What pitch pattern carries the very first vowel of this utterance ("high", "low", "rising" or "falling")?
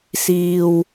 low